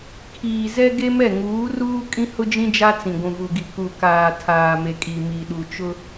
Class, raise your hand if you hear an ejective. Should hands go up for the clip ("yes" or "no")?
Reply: yes